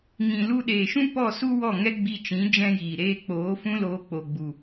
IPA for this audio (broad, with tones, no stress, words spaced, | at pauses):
ŋĩ˨lu˧ɗeː˨ʃũ˦ pɔ˦˨su˦wɔ˦˨ ŋɛ˦ɡ͡bi˧t͡ʃĩ˨˦ d͡ʒɛ̃˦jiː˨ɾeː˦ k͡poː˨˦ fũ˦loː˧ k͡po˨ɡ͡bu˨